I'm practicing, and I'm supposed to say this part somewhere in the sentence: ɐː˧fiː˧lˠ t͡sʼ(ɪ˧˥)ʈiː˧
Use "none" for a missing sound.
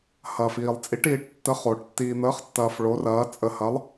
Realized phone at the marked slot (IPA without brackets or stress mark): i˧˥